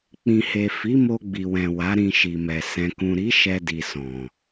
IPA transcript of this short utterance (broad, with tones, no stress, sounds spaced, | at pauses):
k͡p ĩ˨ h e˨ f i˨˦ m o˧ ɡ͡b i˨ w ɛ̃˨ w a˨˦ ɾ ĩ˧ ʃ i˨ m ɛ˨ s ɛ̃˨ k ũ˨ ɾ i˨˦ ʃ ɛ˧ d i˨ s ɔ̃˨